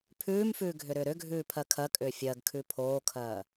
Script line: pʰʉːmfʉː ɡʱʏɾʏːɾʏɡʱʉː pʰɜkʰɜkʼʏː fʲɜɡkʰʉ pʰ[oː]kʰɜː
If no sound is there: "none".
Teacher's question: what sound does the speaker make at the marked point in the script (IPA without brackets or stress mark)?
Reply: oː